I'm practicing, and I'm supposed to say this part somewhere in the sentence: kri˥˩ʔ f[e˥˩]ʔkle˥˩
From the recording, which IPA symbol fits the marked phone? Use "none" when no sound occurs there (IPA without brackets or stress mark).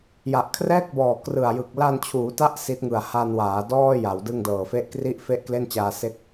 e˥˩